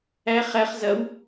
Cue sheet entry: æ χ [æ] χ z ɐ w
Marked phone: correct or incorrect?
correct